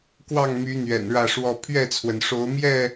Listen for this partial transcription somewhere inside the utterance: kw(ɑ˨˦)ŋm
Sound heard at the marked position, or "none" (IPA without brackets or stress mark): ɑ˥˨